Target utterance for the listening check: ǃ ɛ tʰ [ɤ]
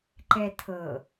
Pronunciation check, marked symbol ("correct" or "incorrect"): correct